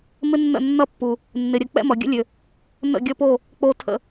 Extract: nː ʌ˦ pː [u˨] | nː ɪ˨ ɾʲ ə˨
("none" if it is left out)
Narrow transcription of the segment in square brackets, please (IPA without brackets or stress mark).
u˨